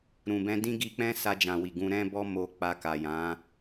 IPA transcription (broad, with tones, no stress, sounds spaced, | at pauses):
ɾ ũ˨ b ɛ̃˧ d ĩ˦ ɡ i˧ k͡p ɛ̃˦ s a˧ d͡ʒ ã˨ w i˨ ɡ ũ˧ ɾ ɛ̃˦ b ɔ˦ m o˧ k͡p a˧ k a˨ j ã˨˦